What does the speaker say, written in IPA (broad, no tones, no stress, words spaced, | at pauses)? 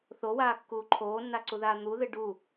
θowaːkːuː ǃʰoːnːaǀuðaː n̪uðɨ ɖu